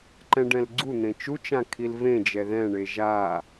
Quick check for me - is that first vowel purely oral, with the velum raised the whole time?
no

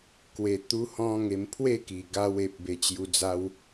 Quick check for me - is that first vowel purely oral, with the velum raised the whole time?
yes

